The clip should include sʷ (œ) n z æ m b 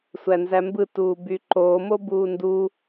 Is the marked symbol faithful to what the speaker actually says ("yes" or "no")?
no